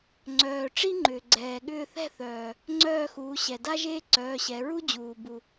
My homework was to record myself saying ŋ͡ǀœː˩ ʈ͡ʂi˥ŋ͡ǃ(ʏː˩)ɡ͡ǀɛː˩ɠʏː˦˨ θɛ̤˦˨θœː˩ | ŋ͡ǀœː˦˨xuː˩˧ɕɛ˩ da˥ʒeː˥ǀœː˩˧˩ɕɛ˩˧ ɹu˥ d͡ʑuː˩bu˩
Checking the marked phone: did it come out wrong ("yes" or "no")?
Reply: no